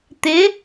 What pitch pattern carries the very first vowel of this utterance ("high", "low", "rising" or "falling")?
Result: rising